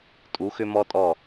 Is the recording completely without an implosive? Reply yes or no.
yes